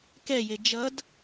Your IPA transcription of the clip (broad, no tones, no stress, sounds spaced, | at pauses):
k ɛ j e d͡ʒ ʌ d